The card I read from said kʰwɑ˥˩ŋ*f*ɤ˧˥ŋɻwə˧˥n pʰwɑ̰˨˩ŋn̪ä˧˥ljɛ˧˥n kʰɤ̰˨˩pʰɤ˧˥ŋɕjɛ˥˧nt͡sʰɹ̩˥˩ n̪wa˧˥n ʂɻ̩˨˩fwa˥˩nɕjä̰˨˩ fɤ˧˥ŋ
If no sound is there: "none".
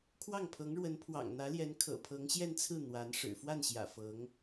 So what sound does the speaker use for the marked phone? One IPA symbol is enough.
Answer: pʰ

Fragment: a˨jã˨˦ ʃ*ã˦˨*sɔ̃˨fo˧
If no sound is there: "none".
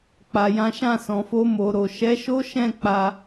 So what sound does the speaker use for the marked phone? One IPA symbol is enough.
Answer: ã˦˨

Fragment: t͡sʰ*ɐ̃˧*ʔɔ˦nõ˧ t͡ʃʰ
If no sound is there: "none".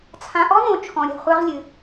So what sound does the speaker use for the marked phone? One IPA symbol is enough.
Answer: ã˧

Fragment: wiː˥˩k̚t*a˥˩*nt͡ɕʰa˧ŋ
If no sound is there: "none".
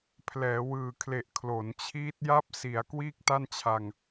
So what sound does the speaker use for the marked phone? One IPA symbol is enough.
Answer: a˥˩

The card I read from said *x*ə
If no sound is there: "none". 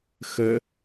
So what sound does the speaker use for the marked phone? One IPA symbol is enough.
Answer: x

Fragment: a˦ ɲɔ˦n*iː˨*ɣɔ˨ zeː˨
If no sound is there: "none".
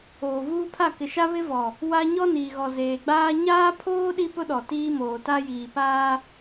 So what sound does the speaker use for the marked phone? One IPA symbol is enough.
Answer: iː˨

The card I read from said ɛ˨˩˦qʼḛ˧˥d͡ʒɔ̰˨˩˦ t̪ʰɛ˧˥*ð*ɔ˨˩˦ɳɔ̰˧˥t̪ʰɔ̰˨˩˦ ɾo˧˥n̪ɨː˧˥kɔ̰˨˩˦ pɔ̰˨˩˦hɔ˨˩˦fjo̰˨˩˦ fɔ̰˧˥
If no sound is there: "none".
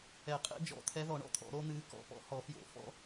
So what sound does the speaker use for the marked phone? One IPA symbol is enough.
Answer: ð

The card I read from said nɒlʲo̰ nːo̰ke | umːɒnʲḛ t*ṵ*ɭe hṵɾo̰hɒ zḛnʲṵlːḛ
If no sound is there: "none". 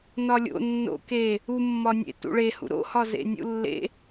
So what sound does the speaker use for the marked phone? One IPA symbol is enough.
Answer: ṵ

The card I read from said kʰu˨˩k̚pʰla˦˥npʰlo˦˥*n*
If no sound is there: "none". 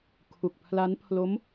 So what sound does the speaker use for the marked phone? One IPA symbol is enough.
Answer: m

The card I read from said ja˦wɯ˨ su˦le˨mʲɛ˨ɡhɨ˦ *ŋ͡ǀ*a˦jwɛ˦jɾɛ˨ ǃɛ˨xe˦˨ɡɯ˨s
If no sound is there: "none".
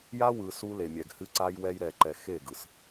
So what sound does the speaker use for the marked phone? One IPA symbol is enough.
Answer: ǀ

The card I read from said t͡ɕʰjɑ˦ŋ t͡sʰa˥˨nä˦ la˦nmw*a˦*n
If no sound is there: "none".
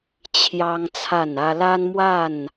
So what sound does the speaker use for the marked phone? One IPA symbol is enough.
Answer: a˥˨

